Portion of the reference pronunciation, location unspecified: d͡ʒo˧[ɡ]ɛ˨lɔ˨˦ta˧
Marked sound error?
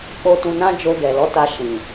no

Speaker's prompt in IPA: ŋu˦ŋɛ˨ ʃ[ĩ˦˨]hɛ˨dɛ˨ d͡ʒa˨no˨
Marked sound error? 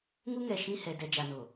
no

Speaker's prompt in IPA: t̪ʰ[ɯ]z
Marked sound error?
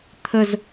yes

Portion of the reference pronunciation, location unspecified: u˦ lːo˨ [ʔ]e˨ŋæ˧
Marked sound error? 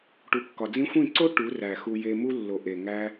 no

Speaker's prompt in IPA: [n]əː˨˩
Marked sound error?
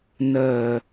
no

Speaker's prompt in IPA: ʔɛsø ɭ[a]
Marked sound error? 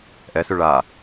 no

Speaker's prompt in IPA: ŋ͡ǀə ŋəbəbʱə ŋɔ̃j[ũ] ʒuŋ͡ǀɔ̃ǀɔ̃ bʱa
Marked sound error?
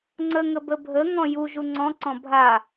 yes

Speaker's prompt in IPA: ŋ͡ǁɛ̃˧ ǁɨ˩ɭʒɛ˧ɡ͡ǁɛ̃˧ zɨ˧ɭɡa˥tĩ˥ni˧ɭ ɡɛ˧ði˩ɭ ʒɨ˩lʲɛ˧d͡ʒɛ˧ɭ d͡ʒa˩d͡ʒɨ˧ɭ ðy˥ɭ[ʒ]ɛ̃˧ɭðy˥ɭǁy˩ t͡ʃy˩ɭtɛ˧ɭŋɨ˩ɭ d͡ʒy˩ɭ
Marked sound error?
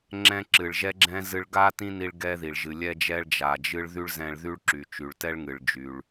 yes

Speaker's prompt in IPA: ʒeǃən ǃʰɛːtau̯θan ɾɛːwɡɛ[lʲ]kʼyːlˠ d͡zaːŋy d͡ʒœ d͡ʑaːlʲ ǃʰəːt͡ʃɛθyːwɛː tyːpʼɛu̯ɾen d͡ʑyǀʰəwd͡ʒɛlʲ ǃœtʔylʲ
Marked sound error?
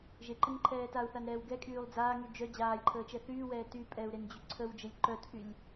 yes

